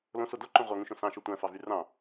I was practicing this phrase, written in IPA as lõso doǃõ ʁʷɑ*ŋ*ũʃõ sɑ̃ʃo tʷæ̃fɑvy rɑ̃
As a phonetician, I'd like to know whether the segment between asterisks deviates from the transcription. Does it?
no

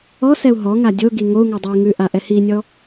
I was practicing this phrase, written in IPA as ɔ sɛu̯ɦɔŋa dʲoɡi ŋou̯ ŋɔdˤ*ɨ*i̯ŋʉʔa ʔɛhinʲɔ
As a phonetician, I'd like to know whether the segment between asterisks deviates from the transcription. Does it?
yes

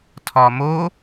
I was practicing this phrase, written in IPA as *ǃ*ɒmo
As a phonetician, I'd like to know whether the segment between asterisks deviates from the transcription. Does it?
yes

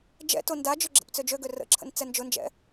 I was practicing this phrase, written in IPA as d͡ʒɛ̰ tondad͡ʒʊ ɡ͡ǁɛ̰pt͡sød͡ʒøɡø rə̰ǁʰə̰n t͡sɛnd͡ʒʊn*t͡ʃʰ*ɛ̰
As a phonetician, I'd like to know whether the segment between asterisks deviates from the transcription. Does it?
yes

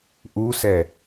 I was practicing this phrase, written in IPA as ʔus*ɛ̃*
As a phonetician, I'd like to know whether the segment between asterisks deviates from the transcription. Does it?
yes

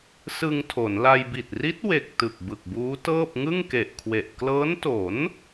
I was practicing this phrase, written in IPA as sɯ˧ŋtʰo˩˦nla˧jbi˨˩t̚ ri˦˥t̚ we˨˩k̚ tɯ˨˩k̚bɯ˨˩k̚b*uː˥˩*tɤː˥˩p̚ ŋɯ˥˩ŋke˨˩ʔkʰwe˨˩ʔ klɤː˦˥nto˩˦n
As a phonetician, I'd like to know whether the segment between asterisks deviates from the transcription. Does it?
yes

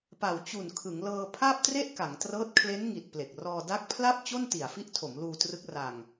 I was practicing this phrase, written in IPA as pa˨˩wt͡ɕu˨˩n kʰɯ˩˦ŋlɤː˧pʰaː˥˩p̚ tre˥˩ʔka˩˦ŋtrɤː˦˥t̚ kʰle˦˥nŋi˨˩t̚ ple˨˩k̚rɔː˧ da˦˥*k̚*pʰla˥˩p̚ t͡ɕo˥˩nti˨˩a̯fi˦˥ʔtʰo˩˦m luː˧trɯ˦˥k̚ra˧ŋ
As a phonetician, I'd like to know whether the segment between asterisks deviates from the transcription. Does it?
no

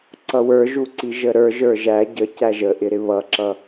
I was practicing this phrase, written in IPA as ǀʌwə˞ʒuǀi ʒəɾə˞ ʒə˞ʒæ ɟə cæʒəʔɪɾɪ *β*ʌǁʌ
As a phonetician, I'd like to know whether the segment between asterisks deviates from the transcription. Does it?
no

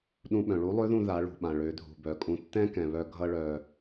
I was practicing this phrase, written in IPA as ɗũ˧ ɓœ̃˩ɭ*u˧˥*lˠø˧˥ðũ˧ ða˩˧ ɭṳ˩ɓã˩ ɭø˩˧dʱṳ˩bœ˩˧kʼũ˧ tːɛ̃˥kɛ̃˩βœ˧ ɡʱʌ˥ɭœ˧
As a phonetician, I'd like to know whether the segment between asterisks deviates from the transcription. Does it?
no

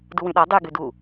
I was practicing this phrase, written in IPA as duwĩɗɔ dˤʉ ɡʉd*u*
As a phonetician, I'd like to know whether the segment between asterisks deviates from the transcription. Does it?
no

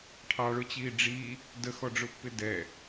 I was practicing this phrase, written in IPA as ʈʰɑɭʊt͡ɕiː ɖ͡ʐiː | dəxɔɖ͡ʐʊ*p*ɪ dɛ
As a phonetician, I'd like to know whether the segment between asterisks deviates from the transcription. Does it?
yes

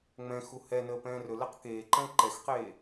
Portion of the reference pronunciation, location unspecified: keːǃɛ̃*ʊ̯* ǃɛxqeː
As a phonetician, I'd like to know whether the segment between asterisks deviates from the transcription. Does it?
yes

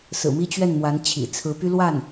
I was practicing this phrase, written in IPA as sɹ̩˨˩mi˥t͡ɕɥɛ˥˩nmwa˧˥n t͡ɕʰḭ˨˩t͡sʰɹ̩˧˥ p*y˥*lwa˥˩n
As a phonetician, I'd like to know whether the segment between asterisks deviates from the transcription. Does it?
no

